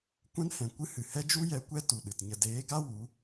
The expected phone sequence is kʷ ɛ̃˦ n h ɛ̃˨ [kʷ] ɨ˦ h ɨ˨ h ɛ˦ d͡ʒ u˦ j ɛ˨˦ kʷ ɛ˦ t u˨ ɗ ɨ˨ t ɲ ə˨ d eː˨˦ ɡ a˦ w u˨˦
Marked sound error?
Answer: no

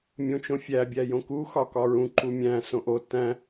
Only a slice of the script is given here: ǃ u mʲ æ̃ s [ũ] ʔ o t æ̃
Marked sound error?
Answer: yes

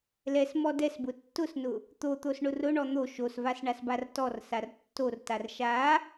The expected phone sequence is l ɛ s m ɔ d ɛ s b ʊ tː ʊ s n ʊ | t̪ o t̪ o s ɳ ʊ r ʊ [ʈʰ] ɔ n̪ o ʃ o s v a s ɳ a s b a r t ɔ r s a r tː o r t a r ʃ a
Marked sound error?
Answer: yes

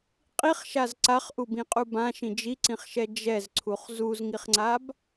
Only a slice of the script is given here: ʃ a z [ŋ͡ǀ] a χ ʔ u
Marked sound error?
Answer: yes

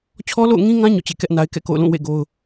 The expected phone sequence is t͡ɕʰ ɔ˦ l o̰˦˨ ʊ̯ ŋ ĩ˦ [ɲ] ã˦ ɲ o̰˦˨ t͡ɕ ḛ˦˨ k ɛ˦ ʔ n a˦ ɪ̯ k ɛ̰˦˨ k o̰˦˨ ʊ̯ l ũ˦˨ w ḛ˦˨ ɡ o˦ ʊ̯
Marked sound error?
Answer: yes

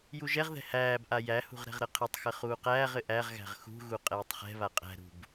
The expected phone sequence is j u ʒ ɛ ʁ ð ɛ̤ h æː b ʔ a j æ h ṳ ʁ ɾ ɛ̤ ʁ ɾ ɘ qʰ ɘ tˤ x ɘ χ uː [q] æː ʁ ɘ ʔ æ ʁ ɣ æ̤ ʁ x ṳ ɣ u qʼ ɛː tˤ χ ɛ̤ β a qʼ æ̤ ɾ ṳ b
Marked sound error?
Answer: no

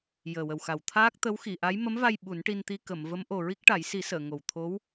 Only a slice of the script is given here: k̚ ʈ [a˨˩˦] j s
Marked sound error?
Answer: no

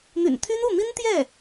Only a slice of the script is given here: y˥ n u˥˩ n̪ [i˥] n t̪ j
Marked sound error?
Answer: no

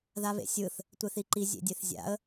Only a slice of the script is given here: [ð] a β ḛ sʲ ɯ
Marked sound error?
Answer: no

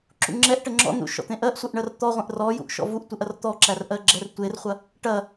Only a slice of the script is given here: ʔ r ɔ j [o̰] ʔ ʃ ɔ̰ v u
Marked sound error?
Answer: yes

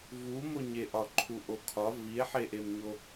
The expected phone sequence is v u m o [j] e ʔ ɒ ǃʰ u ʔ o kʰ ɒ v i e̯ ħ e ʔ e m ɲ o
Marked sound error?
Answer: yes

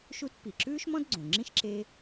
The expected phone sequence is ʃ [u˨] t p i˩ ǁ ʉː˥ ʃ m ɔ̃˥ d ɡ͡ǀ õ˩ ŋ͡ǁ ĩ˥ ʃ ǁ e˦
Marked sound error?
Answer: yes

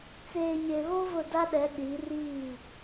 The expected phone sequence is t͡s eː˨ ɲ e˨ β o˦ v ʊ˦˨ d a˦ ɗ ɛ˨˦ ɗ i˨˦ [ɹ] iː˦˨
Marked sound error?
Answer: yes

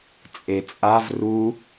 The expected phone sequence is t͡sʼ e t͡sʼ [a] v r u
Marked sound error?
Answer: no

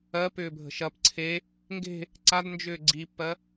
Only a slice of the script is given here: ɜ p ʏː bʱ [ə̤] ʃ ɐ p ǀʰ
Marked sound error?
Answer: no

